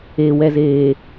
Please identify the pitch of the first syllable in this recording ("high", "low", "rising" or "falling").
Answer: low